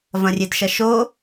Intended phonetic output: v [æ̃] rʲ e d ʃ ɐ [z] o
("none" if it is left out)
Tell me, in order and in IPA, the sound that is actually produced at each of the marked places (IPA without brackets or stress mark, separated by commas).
ɐ̃, ʃ